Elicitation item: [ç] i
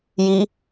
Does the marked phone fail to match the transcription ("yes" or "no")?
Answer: yes